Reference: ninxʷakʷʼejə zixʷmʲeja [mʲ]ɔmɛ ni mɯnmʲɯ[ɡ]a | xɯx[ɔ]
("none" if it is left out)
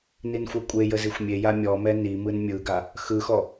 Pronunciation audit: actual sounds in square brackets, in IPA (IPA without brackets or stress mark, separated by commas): mʲ, ɡ, ɔ